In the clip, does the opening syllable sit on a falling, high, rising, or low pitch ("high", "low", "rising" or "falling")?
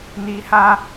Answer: low